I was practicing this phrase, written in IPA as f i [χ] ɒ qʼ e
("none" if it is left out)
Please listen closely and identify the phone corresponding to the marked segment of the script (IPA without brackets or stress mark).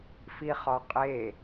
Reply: χ